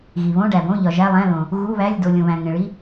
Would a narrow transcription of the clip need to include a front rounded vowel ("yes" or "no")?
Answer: no